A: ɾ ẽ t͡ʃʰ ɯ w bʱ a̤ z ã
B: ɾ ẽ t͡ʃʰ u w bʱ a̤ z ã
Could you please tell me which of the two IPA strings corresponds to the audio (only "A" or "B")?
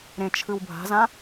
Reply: A